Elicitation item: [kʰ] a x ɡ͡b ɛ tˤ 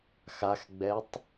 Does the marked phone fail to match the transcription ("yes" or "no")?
yes